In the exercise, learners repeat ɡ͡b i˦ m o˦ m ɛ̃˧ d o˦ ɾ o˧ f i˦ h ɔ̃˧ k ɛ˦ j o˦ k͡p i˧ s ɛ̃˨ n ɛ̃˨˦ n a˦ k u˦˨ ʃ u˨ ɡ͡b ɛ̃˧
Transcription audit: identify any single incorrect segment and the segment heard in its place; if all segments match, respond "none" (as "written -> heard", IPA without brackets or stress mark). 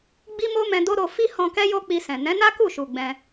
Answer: none